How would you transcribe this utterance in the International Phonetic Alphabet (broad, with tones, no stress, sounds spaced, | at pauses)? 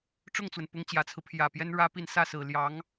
ʈ͡ʂ ʊ˥˩ ŋ t͡s w ə˩ n p ʊ˧˥ ŋ t͡ɕ j ä˨˩ t͡sʰ ɹ̩˦ pʰ j ä˨˩ p j ɛ˥ n ɻ ä˥ p i˥˧ n s ä˥˩ s ɹ̩˨˩ l j ɑ˧˥ ŋ